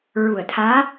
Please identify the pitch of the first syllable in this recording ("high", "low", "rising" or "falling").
low